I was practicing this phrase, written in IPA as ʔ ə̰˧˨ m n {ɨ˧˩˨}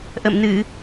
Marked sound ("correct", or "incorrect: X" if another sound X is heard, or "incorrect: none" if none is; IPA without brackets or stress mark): correct